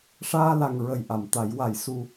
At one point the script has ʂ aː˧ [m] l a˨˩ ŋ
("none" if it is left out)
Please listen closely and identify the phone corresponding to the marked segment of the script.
none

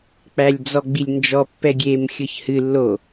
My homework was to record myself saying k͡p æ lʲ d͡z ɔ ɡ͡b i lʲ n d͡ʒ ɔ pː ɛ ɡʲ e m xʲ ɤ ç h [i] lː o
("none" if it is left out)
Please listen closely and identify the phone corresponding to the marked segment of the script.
ɨ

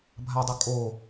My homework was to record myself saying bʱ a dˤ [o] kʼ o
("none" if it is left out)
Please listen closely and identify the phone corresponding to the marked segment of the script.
o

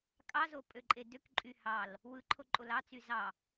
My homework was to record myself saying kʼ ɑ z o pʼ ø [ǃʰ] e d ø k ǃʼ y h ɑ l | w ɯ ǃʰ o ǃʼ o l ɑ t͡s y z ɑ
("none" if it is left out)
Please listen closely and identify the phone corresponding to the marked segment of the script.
ǃʼ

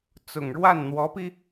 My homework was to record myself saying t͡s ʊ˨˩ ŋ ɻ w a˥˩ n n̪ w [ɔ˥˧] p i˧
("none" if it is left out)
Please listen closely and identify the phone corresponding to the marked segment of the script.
ɔ˧˥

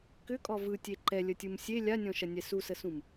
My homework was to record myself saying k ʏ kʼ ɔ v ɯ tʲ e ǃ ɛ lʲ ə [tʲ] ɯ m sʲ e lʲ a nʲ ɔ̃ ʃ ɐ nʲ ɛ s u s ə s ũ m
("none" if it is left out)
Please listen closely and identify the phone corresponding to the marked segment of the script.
tʲ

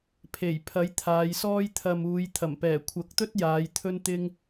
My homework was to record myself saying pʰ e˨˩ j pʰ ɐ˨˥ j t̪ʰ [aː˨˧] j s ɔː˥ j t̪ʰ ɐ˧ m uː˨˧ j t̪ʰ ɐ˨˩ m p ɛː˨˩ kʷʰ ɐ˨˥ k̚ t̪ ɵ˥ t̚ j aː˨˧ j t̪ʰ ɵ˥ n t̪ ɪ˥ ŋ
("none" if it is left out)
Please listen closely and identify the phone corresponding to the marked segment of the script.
aː˨˧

